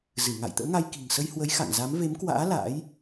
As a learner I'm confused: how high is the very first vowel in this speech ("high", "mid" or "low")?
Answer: high